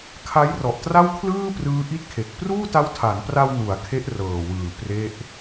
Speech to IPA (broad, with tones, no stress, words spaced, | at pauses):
kʰa˦˥jrɔ˨˩ʔtra˥˩wkʰlɯː˥˩ prɯː˦˥ʔi˥˩t̚kʰe˨˩k̚ pruː˥˩ta˦˥wtʰa˩˦npra˧w nu˩˦a̯ kʰe˦˥ʔrɤː˨˩wɯː˨˩ pre˦˥ʔ